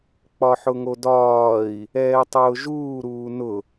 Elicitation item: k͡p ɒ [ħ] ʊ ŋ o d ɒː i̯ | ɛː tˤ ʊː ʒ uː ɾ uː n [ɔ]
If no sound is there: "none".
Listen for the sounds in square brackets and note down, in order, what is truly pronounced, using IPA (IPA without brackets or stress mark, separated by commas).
ħ, ʊ